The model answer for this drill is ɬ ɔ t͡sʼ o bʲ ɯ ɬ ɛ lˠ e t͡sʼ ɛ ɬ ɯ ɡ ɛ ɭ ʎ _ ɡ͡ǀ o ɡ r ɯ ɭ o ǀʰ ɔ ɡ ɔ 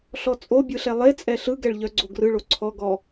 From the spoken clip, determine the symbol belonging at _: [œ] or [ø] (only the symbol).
œ